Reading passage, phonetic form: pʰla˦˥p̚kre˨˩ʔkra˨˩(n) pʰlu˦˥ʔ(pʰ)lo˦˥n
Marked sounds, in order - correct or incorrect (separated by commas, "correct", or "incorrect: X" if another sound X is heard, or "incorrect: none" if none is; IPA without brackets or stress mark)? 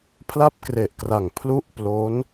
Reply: incorrect: ŋ, incorrect: p